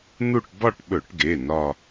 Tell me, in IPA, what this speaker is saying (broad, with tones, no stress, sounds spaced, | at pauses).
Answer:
n̪ u˥˧ ʈ b ɒ˥˧ ʈ ɓ ɵ˧˩˧ ʈ ɡ e˩˧˩ n ɒ˥˧